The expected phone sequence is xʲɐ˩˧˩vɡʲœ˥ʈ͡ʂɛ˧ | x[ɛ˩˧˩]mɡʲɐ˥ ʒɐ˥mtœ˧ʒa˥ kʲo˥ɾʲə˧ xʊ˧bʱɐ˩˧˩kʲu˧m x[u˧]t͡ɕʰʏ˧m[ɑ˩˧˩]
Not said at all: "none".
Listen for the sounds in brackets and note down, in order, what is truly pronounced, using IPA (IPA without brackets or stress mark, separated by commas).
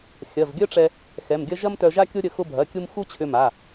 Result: ɛ˩˧˩, u˥, a˩˧˩